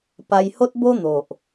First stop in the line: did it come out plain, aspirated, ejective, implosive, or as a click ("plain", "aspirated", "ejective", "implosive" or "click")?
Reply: plain